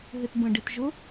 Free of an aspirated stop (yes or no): yes